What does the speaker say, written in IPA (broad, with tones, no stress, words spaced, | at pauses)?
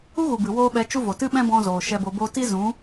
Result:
u˦ɣu˨bɨ˨ woː˧ɓɛ˨˦ t͡ʃu˧vo˨ tɨ˦ɓɛ̃˦bɔ̃˧zoː˨ ʃɛ˧bo˧bo˦ ti˦zũ˨˦